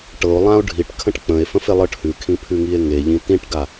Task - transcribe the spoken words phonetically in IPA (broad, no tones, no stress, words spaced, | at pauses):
ʈɤo̯lˠão̯ ɖʱiʈ kʰə̃ʈk͡pə̃e̯fə̃f elˠɤʈhʉkʰĩ pʰʉŋie̯ŋeʎĩ tĩʈɡa